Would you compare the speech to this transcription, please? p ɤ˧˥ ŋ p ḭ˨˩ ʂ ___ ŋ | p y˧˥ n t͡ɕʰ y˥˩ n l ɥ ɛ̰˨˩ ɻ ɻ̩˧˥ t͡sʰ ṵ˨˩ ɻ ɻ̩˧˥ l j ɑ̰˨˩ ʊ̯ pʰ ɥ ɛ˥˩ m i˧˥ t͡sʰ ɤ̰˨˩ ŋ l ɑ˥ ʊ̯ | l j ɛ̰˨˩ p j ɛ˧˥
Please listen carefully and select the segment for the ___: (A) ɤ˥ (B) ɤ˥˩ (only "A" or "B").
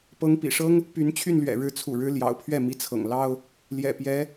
A